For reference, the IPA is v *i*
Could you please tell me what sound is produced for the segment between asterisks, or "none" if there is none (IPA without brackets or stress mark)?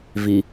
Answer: i